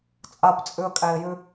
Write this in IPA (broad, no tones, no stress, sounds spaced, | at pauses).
t͡sʼ a p t͡sʼ ʉ ə̯ kʼ æ ɪ̯ j ʉ